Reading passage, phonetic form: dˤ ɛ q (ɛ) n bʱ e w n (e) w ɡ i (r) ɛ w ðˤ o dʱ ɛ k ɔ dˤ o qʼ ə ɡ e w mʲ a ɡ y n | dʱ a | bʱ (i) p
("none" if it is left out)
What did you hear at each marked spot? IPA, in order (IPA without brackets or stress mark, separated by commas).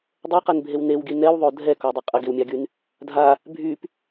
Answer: ɛ, e, n, y